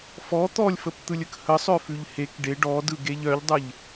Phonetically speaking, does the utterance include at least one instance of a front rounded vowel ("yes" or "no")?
yes